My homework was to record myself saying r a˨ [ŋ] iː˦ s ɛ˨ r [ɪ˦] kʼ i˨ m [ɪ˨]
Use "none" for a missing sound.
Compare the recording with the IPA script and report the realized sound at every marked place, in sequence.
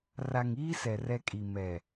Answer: ŋ, ɛ˦, ɛ˨

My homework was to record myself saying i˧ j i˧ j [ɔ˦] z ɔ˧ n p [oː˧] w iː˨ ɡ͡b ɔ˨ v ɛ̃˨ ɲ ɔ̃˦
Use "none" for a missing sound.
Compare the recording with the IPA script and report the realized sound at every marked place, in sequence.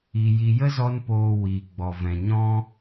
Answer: ə˦, oː˨

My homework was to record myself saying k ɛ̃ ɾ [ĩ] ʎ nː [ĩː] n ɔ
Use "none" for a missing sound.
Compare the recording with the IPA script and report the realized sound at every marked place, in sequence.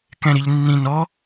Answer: i, ĩ

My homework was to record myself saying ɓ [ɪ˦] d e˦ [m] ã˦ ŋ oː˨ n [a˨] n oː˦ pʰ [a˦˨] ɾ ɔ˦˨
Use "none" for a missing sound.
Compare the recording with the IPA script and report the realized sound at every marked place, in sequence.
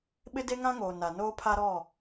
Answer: ɪ˦, ŋ, a˨, a˦

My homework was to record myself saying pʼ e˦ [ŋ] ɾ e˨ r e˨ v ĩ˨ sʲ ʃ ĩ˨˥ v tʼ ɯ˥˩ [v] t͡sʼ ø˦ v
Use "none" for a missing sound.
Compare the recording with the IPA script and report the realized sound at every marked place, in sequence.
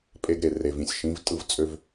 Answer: ɡ, v

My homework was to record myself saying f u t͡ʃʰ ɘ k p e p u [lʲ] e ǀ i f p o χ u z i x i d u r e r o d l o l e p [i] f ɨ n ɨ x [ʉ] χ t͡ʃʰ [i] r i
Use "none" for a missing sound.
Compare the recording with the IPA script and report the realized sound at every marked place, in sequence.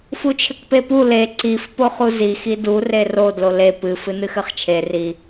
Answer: l, ɨ, ɘ, e

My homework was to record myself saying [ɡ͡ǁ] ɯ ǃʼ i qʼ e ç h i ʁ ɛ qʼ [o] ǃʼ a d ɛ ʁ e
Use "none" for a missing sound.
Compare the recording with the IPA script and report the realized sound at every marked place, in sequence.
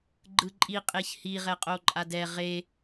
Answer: ɡ͡ǃ, o

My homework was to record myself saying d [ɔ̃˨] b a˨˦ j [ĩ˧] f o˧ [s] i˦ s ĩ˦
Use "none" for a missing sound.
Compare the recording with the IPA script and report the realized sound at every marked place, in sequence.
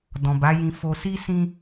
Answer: ɔ̃˨, ĩ˧, s

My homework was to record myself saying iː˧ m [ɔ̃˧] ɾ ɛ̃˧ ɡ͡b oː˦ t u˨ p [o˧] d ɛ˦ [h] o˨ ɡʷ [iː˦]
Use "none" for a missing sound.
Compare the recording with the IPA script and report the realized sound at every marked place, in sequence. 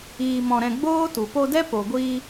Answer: ɔ̃˧, o˧, p, iː˧

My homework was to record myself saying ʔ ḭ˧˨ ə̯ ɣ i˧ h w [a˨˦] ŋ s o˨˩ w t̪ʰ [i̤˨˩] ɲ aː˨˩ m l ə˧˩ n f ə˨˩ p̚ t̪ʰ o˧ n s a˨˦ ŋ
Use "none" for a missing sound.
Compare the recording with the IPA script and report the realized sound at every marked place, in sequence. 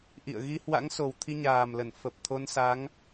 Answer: a̰˧˥, i˧

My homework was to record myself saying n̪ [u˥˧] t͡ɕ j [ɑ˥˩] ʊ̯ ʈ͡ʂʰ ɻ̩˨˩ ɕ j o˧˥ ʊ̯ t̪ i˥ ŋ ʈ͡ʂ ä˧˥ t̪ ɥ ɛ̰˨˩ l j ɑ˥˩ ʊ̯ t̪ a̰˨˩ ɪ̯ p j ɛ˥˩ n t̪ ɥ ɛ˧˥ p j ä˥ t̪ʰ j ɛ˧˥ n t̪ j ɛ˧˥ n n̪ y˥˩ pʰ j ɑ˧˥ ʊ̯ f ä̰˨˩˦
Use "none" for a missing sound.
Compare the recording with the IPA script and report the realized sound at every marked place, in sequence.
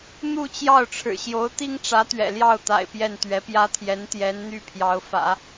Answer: u˥˧, ɑ˥˩

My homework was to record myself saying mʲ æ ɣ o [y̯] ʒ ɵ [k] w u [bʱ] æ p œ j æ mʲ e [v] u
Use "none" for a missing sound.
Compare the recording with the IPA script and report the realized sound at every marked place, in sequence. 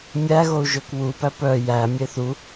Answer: u̯, k, p, θ

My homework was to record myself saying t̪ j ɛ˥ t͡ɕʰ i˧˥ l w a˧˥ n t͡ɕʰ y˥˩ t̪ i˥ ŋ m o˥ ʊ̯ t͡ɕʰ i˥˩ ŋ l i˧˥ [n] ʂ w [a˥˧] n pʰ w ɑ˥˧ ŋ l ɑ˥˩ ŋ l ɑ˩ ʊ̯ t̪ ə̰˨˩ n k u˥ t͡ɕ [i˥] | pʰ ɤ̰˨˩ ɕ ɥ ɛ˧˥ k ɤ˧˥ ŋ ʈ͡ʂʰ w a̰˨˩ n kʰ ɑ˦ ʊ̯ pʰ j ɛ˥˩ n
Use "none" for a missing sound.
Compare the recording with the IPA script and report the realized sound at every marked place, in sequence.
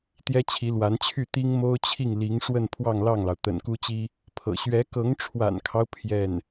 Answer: ŋ, ə˥˧, i˥

